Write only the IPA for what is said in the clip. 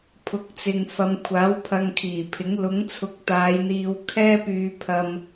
pʰ ʊ˨˥ k̚ t͡s ɪ˨ ŋ f ɐ˨ m kʷʰ aː˨˥ w pʰ ɐ˧ ŋ kʰ iː˨˩ pʰ ɪ˨˥ ŋ l ʊ˨˥ ŋ t͡sʰ ʊ˨ k̚ t̪ aː˨˧ j n̪ iː˧ w kʰ ɛː˥ p yː˧ pʰ ɐ˧ m

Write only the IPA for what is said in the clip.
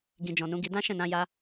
ɡ ĩ˨ d͡ʒ ɔ̃˨ n ũ˧ ɡ i˧ d ã˦ ʃ ɛ̃˦˨ n ã˧ j a˧

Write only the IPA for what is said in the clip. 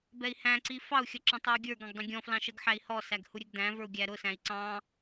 b ɛ i̯ h æ̃ ǀ i f ɑ u̯ xʲ ʌ ǁ ə̃ tˤ ʌ u̯ ɡʲ ə˞ ɡ ɑ̃ ɡ dˤ ə̃ ɡʲ ɔ̃ f l ɑ̃ ʃ ə ɡ ħ æ i̯ h ɔ s æ ɡ h u ɾʲ ɛ ɡ d æ̃ v ə˞ u̯ ɡʲ æ ɾ ʊ s æ̃ i̯ ǀ ɑ̃

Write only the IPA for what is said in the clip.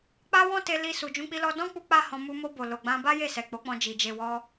k͡p a˦ w ɔ̃˦ t e˧ l i˧ s u˨ d͡ʒ ũ˧ k͡p i˧ l ɔ˧ d ɔ̃˦ k͡p u˧ k͡p a˦ h ɔ̃˧ m u˧ m o˧ b o˨ l o˨ ɡ͡b ã˧ b a˦ j e˦˨ s ɛ˨ k͡p o˨˦ k͡p ɔ̃˧ d͡ʒ i˨ d͡ʒ e˨ w ɔ˧

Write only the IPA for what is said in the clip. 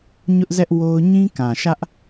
ɲ ʊ˦ ʔ z ɛ˦ ʔ w o˦ ʊ̯ ɲ ĩ˦ k ã˨ ʃ ä˦ ʔ

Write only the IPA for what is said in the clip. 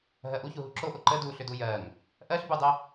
ɦ ɜ ʔ u ç u ɦ u ǁ o ʔ o ǃ ə d u ɬ ʏ d u j ɜ ŋ | ʔ ɜ ɬ b u dˤ ə

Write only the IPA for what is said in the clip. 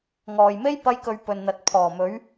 ŋ ɔː˨ j m e˥ j p ɐ˥ j k ɵ˧ ɥ p ɵ˨ n n̪ ɐ˨ t̚ pʰ ɔː˨˩ m ɵ˨˥ ɥ

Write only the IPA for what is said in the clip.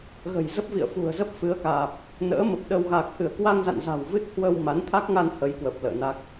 ɣ ə̤˨˩ j z ə˦˥ p̚ v ḭ˧˨ ə̯ f ṳ˨˩ ə̯ z ə˦˥ p̚ f ɨ˨˦ ə̯ k aː˨˩ p̚ | n ə̰ː˧˥ m ə˨˩ p̚ ɗ ə˧ w ɣ a˨˩ k̚ h ɨ˧˩ ə̯ k w a˧ ŋ z a̰˧˨ n z a̤˨˩ w v ɨ˦˥ t̚ h w ə˧ w m a˨˦ n t̪ʰ a˦˥ k̚ ŋ a˧ n h ə˨˦ j k w ə˨˩ p̚ l ə̰ː˧˨ n a˦˥ k̚

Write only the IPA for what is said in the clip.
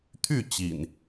t̪ʰ y˥˨ t͡ɕ ḭ˨˩ n

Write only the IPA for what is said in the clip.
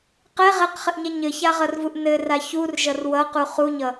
q ɛ ʁ ɛ q χ ɘ ʔ ɲ ɛ ɲ ɘ ç a ʁ ʌ r v u ʔ n ɘ r a ç u r ʒ ʌ r w ʌ q u χ u ɲ ʌ

